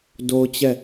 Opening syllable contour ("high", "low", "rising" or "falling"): high